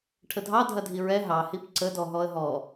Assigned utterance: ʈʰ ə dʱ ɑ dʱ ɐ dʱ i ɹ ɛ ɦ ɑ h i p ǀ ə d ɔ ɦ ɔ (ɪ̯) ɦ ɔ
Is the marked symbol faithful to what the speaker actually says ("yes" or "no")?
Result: no